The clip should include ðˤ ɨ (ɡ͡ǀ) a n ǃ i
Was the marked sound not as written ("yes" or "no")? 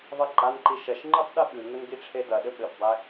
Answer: yes